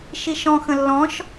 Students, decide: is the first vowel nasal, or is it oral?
oral